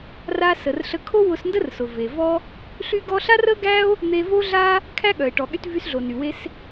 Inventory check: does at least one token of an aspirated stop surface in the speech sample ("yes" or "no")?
yes